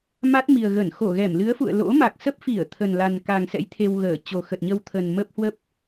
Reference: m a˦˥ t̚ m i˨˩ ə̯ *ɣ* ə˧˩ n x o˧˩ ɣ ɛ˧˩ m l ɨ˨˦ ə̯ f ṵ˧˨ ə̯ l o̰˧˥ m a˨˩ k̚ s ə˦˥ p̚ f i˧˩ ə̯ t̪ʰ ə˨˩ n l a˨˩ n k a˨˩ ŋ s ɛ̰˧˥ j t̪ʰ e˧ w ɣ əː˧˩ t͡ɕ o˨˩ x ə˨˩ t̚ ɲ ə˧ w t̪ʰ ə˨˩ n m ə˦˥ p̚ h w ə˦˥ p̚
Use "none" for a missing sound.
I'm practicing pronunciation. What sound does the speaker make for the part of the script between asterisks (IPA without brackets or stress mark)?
ɣ